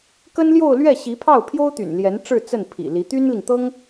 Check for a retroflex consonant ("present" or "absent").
present